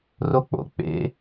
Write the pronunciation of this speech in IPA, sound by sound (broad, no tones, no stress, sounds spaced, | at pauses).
r o k͡p o̰ k͡p ḛ